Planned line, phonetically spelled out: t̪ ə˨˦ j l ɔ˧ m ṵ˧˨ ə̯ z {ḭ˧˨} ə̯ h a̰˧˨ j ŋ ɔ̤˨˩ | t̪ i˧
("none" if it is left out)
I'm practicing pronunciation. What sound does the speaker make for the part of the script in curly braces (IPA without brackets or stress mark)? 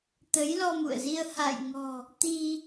i˧